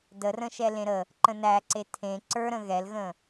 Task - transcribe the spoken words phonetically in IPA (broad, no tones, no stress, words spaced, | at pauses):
dərə̃ʃɛ lẽɾə | ǃə̃næǀe tʰẽ ǀə˞ɾə̃ ɣɛlɣə̃